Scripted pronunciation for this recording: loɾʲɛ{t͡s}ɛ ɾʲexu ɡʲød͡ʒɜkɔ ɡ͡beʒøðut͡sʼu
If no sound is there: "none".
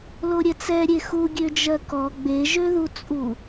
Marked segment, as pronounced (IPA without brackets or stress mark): t͡s